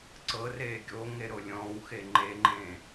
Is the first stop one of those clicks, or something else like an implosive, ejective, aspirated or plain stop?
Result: click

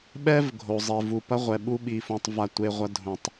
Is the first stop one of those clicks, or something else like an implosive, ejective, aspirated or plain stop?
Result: implosive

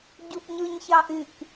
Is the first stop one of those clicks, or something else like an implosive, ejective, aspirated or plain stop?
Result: plain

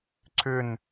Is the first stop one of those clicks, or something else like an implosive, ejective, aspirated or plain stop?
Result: click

